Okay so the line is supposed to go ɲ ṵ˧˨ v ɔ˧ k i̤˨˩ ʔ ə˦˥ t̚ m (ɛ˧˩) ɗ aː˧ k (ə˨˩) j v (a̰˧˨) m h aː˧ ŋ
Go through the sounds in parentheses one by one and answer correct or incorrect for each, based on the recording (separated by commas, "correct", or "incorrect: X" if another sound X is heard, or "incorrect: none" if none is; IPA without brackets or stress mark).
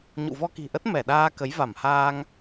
correct, incorrect: ə˨˦, incorrect: a˧˩